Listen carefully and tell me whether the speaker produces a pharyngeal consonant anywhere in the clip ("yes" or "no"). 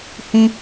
no